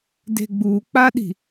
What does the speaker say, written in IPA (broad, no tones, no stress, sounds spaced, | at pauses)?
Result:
d e̤ ɡ͡b u k͡p a ɗ i̤